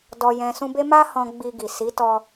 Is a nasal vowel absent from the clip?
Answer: no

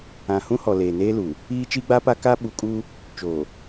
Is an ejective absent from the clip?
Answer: no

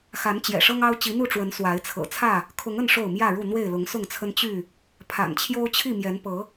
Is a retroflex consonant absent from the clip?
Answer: no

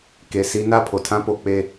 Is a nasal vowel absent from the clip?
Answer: no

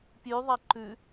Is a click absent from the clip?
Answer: no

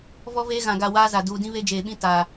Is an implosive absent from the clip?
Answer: no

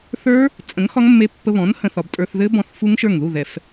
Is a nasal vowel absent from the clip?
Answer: no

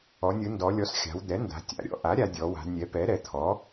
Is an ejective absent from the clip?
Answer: yes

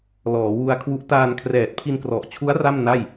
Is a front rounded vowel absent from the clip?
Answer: yes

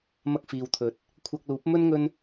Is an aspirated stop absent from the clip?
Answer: no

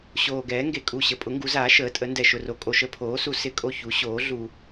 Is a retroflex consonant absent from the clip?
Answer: yes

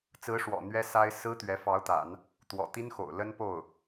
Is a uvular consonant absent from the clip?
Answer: yes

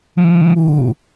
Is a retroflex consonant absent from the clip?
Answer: yes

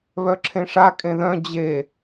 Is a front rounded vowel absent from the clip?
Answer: no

